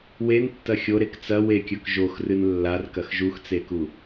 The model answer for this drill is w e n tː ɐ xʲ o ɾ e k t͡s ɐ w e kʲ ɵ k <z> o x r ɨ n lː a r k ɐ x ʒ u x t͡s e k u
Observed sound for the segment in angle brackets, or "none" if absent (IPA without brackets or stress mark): ʒ